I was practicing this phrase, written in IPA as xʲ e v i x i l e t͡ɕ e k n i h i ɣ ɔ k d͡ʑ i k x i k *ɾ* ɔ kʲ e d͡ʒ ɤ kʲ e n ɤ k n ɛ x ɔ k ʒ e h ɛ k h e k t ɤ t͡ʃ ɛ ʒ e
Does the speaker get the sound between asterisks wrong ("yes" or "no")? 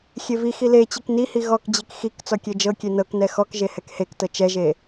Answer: yes